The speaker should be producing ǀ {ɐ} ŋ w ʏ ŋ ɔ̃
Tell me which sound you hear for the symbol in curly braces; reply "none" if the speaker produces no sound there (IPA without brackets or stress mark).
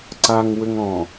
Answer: a